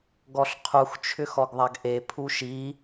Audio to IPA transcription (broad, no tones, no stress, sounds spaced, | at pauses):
ɡ ɔ ɬ qʰ u x t͡ʃʰ ʏ x ɔ ɡ ðˤ a ɡ ʔ e pʰ u ʃ i